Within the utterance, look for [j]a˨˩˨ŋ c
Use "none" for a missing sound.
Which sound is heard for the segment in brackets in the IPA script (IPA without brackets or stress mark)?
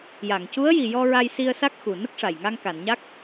j